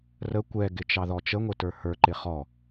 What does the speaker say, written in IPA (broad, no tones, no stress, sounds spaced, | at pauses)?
r ə kʷ ɛ ɡ ɪ t͡ʃ ɑ ð ɔ t͡ʃ ə ŋʷ ɪ t ə˞ h ə˞ ǃ ɪ χ ɔ